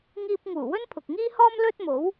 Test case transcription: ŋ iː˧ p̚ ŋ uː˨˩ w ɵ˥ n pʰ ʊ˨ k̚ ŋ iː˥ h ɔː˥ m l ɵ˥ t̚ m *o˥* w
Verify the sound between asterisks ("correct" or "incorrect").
incorrect